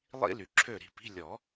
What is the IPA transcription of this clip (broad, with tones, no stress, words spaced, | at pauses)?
lˠḭ˥ ly˨ǁʰø˥˨ ɾi̤˥˨pi̤˧˥˧ lʲɔ˨˩˦